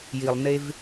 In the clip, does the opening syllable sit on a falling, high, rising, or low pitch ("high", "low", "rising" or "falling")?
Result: low